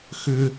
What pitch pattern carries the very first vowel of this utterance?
high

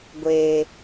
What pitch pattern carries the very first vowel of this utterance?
low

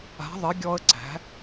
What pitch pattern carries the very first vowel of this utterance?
rising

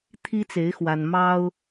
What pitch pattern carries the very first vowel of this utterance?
high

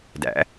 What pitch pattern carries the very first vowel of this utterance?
rising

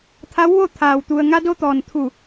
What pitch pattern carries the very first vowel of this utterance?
rising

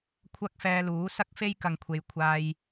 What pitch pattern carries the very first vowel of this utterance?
high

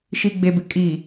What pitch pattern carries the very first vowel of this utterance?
low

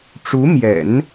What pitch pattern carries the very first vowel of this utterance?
rising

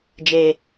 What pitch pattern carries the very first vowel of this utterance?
low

